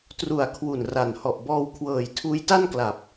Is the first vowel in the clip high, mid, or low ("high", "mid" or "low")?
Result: high